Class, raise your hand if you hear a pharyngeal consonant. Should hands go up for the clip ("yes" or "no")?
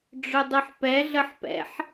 yes